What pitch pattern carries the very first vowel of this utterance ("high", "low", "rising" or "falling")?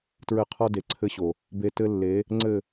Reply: falling